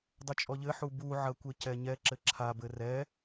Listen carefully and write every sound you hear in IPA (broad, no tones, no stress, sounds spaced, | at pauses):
dˤ o t͡ʃʼ ɔ ʎ ɘ ħ u b u ʕ ɐ kʷ e c ɛ ɲ ɛ ǁ ɘ ǁʰ a b ɘ r ɛ